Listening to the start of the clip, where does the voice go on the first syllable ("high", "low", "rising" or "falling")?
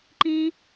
high